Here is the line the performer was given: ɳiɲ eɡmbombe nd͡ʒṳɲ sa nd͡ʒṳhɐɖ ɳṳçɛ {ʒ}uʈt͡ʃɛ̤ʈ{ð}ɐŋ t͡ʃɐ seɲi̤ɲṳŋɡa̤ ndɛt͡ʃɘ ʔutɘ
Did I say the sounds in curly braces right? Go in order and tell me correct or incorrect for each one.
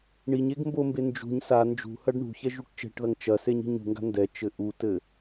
correct, correct

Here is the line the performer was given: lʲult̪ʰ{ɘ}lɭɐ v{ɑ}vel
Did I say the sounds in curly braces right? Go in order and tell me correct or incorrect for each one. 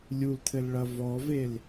correct, incorrect

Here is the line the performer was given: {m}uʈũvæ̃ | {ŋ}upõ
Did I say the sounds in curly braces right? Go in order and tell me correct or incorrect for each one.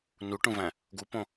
incorrect, incorrect

